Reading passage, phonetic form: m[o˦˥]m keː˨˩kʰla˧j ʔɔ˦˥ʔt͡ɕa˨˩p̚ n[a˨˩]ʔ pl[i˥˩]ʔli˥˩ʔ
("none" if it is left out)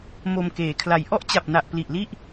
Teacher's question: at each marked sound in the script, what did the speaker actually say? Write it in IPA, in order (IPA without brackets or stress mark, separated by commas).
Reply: o˧, a˨˩, i˨˩